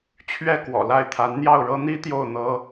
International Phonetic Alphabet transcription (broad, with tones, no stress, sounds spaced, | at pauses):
t͡ɕʰ ɥ ɛ˥˩ k w ɔ̰˨˩ l a˥˩ ɪ̯ t̪ʰ a˧˥ n n̪ j ɑ˥˩ ʊ̯ ɻ ɤ˥ n̪ i˥ t̪ j o˥˩ ʊ̯ n̪ ɤ˥